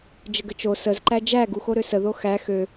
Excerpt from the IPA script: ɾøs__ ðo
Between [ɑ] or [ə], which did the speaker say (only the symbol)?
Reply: ə